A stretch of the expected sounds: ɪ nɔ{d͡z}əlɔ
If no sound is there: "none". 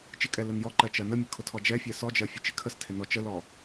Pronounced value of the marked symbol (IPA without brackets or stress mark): t͡ʃ